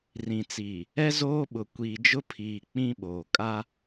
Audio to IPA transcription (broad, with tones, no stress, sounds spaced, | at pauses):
r ĩ˨ t͡s iː˨ | ɛ˦ z oː˦ ɓ ʊ˨ kʷ iː˨ d͡ʒ ʊ˦ pʰ iː˨ k͡p ĩ˦ ɓ oː˨ kʼ a˦